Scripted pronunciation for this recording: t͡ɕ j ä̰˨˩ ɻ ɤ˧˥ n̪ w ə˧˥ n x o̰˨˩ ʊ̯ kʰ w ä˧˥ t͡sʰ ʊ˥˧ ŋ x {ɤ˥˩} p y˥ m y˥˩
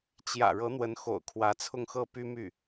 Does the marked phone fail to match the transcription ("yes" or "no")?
no